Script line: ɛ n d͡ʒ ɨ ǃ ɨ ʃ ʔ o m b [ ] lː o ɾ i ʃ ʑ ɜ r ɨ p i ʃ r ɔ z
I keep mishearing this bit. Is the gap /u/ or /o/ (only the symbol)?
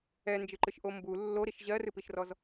u